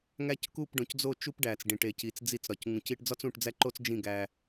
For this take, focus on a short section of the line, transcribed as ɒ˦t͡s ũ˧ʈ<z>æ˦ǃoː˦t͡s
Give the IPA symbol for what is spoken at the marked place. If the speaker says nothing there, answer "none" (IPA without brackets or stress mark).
d͡z